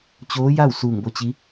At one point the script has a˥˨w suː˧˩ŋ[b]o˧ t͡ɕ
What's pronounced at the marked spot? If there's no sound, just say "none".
b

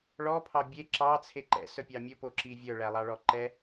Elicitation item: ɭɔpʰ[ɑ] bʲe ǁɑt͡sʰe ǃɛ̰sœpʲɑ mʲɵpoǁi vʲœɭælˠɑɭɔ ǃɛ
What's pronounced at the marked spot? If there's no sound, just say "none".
ɑ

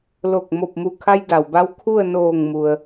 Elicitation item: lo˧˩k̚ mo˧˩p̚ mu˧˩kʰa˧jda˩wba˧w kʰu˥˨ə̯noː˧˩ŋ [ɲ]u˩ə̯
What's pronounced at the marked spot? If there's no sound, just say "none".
m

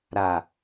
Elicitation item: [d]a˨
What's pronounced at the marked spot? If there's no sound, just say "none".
ɾ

